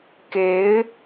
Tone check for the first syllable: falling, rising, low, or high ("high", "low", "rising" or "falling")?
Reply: rising